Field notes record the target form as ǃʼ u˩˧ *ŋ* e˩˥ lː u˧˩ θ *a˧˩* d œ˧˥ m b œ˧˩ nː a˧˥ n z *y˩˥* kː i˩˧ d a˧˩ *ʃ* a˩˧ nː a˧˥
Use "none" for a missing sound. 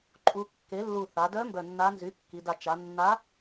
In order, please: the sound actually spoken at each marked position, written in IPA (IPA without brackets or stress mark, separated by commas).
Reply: kː, a˩˧, y˩˥, t͡ʃ